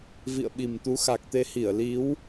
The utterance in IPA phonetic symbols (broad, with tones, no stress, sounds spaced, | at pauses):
v ḭ˧˨ ə̯ ɓ i˨˩ m t̪ u˨˦ x a˨˩ k̚ t̪ e˧ h i˧˩ ə̯ l i˨˦ w